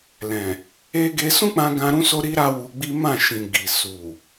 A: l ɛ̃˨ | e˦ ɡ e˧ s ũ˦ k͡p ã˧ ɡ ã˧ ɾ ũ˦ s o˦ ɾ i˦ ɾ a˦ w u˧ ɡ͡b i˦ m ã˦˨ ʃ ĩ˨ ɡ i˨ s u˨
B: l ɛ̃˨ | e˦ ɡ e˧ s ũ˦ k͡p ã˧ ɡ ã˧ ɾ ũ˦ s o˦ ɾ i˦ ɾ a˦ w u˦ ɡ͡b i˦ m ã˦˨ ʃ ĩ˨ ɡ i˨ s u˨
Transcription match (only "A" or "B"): A